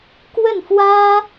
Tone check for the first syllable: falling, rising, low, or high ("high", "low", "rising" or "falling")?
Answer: falling